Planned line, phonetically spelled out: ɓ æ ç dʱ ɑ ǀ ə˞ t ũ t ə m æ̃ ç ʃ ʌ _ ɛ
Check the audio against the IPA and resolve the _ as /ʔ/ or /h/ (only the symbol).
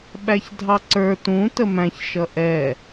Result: ʔ